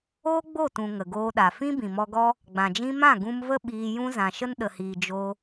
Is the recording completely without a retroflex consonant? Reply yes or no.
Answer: yes